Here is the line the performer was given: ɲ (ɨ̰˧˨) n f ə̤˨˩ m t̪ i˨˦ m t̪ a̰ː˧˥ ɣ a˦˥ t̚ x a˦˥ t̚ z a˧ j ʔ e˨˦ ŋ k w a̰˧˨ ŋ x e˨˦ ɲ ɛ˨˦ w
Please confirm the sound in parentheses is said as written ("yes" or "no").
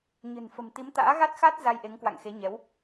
no